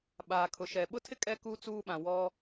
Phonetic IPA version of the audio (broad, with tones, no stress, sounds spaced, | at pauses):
ɓ aː˨ kʰ ʊ˨ ʃ ɛ˨ ɓ ʊ˦ tʰ ɪ˦ kʼ ɛ˦ k u˦ t͡s uː˦ ɓ ã˨ w ɔ˦